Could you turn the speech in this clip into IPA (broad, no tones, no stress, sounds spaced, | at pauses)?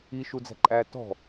i ʃ u d͡z æ̤ ǃʼ æː t ɔ̤